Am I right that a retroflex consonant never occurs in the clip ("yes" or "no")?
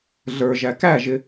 yes